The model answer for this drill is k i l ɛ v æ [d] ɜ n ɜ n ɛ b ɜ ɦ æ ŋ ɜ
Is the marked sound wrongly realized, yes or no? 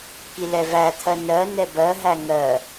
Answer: yes